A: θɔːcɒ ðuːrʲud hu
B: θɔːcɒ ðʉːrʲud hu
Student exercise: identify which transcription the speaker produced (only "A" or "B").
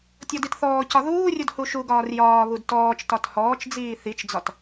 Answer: A